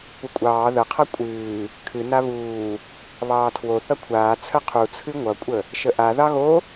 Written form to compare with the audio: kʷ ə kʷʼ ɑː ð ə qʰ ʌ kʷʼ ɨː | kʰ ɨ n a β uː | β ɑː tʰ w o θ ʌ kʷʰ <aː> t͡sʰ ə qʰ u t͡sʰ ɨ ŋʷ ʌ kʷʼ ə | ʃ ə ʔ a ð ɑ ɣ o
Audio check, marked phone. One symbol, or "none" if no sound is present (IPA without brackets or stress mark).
aː